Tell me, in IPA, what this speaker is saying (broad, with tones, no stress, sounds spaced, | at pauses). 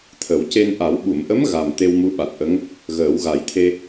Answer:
t̪ʰ ə˨˩˦ w c e˧ n ʔ a˨˩˦ w ɓ u˨˩˨ m ʔ ə˧˥ m ɣ a˨˩ m t̪ e˧ w m u˧˥ ɓ a˨˩ t̚ ʔ ə˧˥ ŋ | ɣ əː˨˩˦ w ɣ a˨˩˦ j t̪ʰ e˧